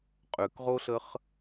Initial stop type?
ejective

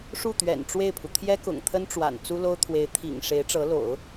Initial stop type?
plain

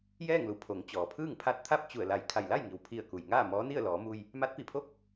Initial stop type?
aspirated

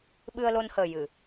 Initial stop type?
implosive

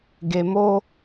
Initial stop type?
plain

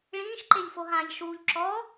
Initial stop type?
click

